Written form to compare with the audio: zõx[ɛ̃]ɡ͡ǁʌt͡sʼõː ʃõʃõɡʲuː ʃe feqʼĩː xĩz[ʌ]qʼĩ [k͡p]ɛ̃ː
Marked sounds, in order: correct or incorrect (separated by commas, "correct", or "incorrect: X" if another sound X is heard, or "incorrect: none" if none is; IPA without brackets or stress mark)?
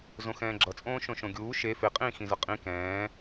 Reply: incorrect: ɛ̃ː, correct, incorrect: k